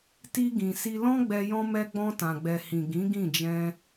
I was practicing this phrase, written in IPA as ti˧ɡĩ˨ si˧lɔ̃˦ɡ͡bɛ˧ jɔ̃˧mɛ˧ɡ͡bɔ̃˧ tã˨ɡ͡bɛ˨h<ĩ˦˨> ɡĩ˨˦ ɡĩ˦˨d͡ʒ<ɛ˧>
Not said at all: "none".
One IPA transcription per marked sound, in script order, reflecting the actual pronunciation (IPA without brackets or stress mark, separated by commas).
ĩ˨, ɛ̃˧